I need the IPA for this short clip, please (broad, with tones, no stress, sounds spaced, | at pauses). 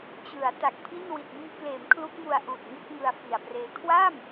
t͡ɕ ɯ˩˦ a̯ t a˨˩ k̚ pʰ i˥˩ n w i˨˩ t̚ m iː˧ k l eː˩˦ m kʰ l u˦˥ k̚ m u˧ a̯ ʔ uː˨˩ t̚ ŋ u˥˩ k̚ ŋ ɯ˧ a̯ f i˨˩ a̯ p r eː˦˥ kʰ w a˥˩ m